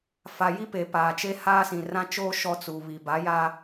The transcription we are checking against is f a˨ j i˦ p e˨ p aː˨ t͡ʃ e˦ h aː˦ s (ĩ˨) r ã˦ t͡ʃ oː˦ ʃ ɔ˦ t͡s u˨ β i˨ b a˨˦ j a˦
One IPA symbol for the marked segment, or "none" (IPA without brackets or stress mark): ĩ˨